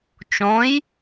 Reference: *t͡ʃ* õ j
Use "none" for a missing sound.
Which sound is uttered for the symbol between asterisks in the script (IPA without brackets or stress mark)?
t͡ʃ